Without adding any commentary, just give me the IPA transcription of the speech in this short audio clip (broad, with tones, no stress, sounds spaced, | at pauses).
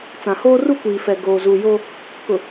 t͡s ã˨ h oː˦ r u˦ kʷ iː˨ f ɛ˨ ɡ oː˨ z u˨ j o˦ | k ʊ˨